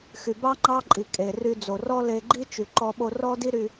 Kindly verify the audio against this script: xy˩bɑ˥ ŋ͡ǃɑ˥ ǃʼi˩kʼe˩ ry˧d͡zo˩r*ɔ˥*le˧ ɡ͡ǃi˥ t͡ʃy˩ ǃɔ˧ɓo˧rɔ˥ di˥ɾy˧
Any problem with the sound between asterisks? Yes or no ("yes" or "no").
no